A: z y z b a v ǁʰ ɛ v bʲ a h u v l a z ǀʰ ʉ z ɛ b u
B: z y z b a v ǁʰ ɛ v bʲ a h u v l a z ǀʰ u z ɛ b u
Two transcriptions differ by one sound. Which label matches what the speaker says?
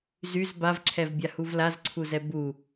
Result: B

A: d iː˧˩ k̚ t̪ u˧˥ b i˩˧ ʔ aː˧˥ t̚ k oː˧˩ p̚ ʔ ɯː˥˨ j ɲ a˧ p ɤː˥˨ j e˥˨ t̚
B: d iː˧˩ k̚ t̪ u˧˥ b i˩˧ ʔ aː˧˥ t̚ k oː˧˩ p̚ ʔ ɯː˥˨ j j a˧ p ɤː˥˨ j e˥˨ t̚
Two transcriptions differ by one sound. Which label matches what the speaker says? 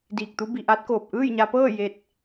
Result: A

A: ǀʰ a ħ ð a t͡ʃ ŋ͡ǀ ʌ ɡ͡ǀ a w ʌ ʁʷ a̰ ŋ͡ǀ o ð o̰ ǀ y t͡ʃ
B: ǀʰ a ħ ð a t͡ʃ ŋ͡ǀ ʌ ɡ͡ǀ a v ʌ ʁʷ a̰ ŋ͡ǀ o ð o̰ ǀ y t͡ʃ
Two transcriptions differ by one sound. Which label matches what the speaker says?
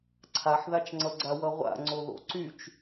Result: A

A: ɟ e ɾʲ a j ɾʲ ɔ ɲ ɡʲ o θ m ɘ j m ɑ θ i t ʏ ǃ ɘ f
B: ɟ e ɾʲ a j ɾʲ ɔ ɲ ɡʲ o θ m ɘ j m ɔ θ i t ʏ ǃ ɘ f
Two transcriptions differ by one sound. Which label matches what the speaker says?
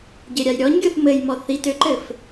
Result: B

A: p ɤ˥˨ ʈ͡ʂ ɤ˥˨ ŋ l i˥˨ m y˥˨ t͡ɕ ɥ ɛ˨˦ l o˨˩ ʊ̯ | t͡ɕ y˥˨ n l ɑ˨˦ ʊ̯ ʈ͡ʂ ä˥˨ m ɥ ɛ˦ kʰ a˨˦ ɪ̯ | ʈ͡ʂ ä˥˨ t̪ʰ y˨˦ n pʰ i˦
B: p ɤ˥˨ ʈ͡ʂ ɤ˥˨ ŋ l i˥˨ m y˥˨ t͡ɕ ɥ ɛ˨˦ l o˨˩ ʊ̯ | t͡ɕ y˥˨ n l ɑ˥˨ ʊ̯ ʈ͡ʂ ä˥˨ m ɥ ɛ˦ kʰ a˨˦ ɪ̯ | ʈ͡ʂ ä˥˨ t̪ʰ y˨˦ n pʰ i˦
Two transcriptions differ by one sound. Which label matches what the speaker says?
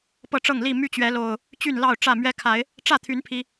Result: B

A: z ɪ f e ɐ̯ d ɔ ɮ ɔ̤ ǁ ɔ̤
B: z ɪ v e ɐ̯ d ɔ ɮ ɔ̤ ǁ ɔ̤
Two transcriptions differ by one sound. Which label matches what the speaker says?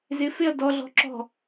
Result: A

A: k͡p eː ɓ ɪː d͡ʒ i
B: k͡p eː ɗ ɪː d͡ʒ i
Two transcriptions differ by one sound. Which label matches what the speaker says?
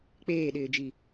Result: B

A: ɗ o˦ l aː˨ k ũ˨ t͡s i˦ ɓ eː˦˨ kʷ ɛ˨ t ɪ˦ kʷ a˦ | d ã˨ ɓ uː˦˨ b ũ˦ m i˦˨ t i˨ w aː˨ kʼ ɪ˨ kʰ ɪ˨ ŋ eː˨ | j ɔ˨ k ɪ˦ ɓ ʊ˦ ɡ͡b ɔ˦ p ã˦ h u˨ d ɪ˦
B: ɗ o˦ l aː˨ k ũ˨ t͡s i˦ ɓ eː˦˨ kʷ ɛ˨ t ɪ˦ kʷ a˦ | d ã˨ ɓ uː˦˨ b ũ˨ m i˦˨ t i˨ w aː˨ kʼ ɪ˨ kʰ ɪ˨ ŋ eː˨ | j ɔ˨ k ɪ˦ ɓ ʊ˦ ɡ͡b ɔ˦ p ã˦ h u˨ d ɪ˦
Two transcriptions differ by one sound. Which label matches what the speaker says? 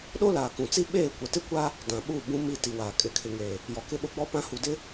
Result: A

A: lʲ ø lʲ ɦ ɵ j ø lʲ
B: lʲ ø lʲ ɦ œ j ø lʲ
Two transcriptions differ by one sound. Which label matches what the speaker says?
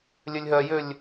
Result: B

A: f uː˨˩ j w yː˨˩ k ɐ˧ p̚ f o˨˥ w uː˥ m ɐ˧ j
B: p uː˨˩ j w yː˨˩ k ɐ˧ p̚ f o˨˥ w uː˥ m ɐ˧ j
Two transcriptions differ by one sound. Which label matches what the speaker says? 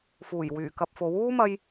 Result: A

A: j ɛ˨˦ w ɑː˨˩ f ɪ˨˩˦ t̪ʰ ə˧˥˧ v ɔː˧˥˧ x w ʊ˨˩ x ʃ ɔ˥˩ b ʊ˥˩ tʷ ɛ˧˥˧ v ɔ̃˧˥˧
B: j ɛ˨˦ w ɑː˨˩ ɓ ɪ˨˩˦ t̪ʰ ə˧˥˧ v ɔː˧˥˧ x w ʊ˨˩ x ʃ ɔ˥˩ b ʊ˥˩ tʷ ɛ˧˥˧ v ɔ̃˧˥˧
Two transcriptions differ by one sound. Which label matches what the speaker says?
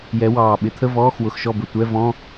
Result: B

